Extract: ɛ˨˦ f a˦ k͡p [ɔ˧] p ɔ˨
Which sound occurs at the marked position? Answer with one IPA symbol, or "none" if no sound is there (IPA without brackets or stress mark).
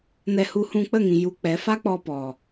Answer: ɔ˧